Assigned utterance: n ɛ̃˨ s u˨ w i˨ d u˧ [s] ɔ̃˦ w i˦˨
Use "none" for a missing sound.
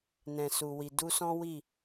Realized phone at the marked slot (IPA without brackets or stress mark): s